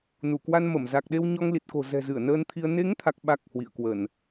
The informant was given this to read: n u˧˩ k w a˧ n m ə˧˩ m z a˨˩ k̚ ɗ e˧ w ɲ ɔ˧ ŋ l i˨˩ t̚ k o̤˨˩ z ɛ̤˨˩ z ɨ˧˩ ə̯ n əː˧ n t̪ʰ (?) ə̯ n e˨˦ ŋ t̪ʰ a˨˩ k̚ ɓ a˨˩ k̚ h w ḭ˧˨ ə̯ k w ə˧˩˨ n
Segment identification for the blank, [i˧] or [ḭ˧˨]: i˧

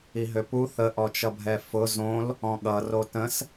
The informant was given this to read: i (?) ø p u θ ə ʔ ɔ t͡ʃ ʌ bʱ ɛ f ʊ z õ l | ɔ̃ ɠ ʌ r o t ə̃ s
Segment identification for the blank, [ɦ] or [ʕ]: ɦ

